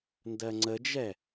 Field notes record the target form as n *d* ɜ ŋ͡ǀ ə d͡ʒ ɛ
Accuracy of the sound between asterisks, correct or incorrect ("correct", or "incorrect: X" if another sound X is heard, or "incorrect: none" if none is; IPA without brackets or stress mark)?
correct